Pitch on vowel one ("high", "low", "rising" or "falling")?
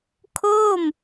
falling